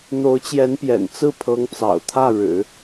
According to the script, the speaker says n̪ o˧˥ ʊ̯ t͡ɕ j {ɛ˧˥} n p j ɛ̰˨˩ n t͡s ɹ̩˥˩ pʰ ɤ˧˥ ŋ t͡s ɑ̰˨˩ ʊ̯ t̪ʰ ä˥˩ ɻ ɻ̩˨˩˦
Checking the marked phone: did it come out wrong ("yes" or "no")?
no